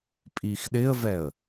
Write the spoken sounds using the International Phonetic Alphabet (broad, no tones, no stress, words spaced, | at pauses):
pʼixɗɪə̯vɛə̯